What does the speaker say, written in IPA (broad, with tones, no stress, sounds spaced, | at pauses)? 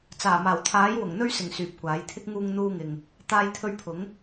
t͡s aː˨˩ m aː˨˩ w t̪ʰ aː˨˥ j w ʊ˨˩ ŋ n̪ ɵ˧ ɥ s ɪ˨˩ ŋ s yː˨ p̚ kʷ aː˨˥ j t̪ʰ ɪ˥ k̚ ŋ uː˧ ŋ n̪ uː˧ ŋ ɪ˨ ŋ | t̪ aː˧ j t̪ʰ ɵ˧ ɥ pʰ ʊ˨˥ ŋ